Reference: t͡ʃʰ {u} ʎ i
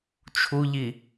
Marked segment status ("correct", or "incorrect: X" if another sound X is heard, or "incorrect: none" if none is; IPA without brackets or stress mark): correct